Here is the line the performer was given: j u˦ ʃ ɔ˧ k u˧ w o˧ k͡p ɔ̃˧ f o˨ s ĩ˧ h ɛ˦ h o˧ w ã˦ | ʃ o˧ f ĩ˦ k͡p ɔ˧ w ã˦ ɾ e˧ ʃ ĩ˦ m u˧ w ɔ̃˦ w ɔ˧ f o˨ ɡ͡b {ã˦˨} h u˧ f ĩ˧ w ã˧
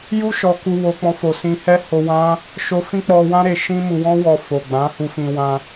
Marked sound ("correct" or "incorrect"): incorrect